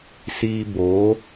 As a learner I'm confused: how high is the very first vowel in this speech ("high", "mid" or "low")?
high